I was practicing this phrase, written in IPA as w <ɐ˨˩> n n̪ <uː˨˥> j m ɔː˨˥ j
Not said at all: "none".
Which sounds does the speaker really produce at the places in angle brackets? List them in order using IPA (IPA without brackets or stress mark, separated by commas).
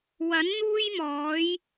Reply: ɐ˨˥, uː˥